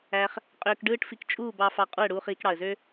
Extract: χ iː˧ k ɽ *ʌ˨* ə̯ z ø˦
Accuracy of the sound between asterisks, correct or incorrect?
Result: incorrect